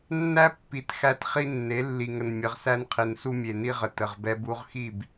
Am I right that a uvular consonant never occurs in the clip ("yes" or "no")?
no